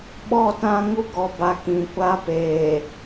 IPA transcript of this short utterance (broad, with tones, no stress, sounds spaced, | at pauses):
ɓ ɔ˦˨ t ã˦ ŋ u˦ ɡ ɔ˨ b a˨ k ĩ˨ kʷ a˦ p eː˨